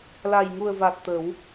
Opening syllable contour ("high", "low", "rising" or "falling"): low